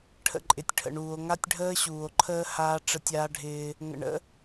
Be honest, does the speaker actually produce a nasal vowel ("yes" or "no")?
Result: no